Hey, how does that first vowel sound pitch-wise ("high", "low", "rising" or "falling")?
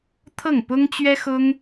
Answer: falling